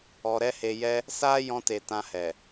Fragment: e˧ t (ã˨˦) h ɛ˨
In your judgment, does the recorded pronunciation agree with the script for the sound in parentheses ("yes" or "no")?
no